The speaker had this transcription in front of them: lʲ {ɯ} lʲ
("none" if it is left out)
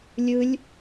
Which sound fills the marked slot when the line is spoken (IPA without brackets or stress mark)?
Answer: ɯ